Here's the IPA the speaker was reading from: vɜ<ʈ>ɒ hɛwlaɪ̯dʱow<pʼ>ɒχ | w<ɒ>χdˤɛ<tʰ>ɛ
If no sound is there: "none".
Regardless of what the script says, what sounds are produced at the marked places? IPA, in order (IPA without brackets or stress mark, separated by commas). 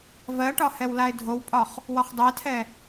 ʈ, pʼ, ɒ, tʰ